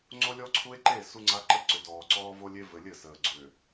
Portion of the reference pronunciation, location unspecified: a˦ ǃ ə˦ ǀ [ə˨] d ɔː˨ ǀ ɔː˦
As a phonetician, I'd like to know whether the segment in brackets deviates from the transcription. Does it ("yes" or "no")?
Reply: yes